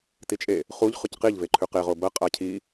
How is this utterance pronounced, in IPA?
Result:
t i t͡ʃʼ e | χ u ʎ χ ʉ c q i ʎ v e ǃʰ ʉ q e ʁ o b ɐ qʼ a cʰ i

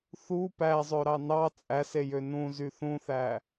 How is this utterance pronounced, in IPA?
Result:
θ u p æ zˤ ø ɾ ɑ n ɑ t͡sʼ æ s e j ø n ũ z y θ ũ θ æ

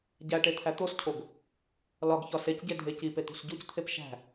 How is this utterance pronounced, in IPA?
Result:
ɟ æ ʈ e t̪ʰ æ t̪ o s cʰ o ɡ | l ɒ ɡ ç ɒ s e c ɟ e dʱ e c i p e t̪ ṳ s ɟ u c t̪ʰ e p ʃ æ̤

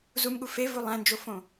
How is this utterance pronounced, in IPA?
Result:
z u m ɠ u f e v u lˠ æ̃ n d͡ʒ o f õ

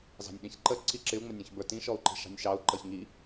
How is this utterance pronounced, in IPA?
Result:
z ɑ̤ nʲ ɗ ĩ ç ǃ ə ǀ i ǁ ɪ u̯ ŋ͡m ʌ nʲ ɔ̃ ç b ə˞ t ĩ ʃ ɔ u̯ ǃ i̤ ʃ ɑ̤ nʲ ʃ ɑ u̯ ǃ ʌ ç ŋ i

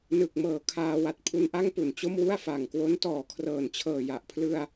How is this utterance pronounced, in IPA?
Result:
n ɯ˨˩ k̚ m ɤː˨˩ kʰ aː˧ w a˨˩ t̚ pʰ u˧ n ʔ a˥˩ ŋ p u˨˩ n t͡ɕ o˥˩ m w u˥˩ a̯ f a˨˩ ŋ k w o˦˥ n t ɔː˨˩ kʰ r ɤː˨˩ n t͡ɕʰ ɤː˨˩ j a˨˩ ʔ pʰ l ɯ˧ a̯

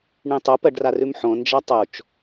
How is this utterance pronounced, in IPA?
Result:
ɳ ĩ tˤ o p ɜ ɖ r a r ʉ m ħ õ n d͡ʒ a tˤ o t͡ʃ

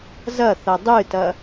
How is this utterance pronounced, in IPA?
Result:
z ɐ θ ɐ dˤ ɨ t ɐ

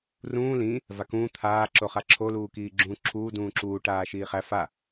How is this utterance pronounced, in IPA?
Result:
r ũː l ĩ | v a k ũː t̪ʰ aː ǁ o χ a ǁʰ o l uː k iː ɡ͡ǁ ũː ǁʰ uː d ũː ǁ uː ʈ aː ʃ iː χ æ f a

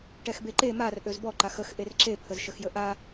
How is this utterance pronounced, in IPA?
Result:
ʈ ɛ x b e ǃ e m a r ʔ ø z b ɔ ǃ a x ə x ʔ e r ǁ e pʰ ə z ʃ ə x j ə ʔ a

